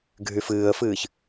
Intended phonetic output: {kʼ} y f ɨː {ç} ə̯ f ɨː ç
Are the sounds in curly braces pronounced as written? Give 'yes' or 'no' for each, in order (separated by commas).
no, no